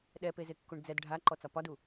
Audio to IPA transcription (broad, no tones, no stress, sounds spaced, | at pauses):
ɗ ɛ p e z e kː u ɳ d͡z ɛ d ɖʱ a ǃ ɔ t͡s ɒ p ɒ d u